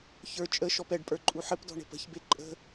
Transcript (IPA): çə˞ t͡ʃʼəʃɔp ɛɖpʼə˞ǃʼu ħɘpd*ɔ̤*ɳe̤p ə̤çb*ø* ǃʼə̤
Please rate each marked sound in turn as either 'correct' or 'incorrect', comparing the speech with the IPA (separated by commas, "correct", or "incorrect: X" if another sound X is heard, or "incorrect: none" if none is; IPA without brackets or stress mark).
correct, incorrect: e